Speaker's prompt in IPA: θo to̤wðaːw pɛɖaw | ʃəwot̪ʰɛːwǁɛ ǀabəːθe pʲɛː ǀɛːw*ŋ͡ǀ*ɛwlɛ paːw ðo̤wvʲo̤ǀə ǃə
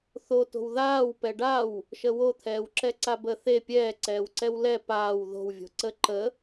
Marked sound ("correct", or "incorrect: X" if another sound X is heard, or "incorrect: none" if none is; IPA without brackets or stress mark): incorrect: ǀ